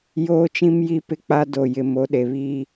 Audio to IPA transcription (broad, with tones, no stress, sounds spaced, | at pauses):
j oː˦ t͡ʃ ĩ˦ m j i˦ p ɪ˦ k͡p a˦ d o˨ j ɪ˨ m o˨˦ ɗ e˨ β iː˦